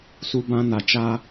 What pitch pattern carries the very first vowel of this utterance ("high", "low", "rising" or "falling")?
low